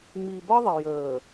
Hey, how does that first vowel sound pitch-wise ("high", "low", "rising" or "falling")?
low